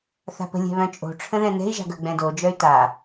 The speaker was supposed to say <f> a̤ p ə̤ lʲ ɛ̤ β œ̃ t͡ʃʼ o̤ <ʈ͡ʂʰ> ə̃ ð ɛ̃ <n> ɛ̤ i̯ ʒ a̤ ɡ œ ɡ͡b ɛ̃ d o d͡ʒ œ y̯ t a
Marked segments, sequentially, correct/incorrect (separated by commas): incorrect, correct, correct